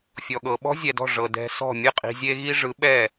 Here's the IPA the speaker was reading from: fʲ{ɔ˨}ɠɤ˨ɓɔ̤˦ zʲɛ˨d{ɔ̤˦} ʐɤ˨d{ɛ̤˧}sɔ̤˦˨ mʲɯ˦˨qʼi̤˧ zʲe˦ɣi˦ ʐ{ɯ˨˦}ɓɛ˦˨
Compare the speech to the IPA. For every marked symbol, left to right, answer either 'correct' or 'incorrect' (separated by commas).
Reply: correct, incorrect, correct, correct